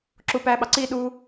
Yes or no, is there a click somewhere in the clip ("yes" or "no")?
yes